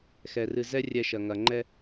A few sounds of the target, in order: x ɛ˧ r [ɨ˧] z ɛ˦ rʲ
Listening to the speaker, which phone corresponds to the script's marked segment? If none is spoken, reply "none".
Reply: ɨ˧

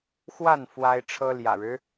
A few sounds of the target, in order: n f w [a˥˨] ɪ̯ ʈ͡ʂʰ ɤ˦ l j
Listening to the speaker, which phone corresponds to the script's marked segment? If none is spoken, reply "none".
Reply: a˦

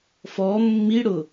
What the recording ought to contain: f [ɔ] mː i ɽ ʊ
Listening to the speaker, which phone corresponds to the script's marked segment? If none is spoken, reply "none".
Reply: ɔ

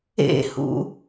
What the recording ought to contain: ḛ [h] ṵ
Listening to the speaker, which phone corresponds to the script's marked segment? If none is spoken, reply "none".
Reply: h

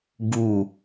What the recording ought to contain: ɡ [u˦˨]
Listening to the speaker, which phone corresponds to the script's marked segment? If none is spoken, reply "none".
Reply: u˦˨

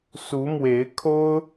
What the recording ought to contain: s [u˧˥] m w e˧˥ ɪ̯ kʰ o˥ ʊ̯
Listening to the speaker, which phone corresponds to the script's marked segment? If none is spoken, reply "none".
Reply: u˧˥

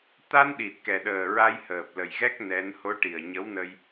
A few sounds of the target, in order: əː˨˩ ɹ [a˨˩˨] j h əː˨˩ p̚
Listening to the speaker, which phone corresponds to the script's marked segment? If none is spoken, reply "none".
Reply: a˧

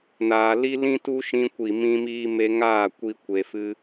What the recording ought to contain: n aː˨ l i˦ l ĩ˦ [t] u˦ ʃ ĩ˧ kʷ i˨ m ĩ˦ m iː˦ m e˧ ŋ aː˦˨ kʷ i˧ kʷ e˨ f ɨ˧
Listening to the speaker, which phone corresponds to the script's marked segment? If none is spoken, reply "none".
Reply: t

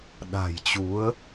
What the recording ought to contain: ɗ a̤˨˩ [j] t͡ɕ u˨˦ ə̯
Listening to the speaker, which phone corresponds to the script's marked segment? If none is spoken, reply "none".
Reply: j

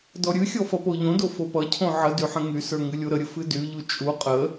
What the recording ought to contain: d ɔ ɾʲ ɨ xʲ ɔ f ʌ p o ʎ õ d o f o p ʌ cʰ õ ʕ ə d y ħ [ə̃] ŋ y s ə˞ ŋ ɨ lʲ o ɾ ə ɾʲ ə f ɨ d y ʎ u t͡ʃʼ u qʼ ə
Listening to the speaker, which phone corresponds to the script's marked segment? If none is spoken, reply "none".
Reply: ə̃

